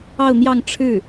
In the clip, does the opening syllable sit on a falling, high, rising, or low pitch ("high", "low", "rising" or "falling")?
falling